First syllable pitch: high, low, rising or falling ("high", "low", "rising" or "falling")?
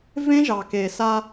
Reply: high